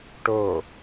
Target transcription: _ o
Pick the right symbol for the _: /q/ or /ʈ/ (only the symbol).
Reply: ʈ